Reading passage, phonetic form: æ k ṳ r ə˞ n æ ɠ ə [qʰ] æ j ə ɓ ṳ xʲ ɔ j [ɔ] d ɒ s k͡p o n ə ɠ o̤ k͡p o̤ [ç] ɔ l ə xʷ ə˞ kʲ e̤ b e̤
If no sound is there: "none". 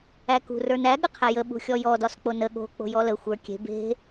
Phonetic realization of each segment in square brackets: qʰ, ɔ, j

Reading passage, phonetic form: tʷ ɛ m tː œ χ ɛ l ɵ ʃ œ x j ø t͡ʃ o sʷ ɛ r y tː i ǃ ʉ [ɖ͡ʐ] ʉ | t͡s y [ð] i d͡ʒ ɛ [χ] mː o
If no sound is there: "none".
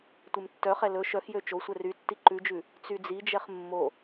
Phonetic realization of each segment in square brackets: d͡ʒ, d͡z, χ

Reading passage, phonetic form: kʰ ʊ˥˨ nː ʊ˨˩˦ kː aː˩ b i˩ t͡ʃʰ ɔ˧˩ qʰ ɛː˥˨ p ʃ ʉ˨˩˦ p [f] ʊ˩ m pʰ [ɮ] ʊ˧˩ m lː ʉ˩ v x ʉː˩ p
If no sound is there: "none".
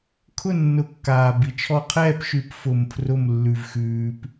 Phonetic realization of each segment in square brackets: f, r

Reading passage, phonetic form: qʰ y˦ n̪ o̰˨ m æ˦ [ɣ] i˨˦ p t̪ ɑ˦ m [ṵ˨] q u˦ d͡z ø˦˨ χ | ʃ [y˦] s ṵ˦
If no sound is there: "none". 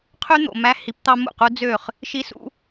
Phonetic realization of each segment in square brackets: h, ṵ˦˨, i˦

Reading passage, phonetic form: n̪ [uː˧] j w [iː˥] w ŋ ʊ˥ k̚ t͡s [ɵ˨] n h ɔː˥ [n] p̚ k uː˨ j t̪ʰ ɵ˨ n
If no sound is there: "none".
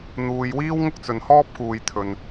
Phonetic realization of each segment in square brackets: uː˨, iː˥, ɵ˨, none

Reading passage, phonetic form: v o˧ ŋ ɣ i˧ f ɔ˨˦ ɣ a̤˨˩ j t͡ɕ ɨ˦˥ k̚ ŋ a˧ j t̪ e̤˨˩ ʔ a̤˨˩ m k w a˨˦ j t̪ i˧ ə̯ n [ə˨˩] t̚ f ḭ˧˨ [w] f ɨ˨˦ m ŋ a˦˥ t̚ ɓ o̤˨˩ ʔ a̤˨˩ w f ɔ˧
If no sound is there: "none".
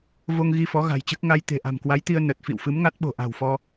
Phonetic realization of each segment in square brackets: ə˨˩, w

